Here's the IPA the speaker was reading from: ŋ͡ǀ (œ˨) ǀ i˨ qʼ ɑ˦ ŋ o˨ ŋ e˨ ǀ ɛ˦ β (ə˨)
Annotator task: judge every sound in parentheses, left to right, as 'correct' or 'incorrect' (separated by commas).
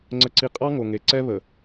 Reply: incorrect, correct